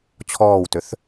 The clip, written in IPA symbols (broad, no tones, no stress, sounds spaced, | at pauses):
t͡ɕʰ ɔː w t ø θ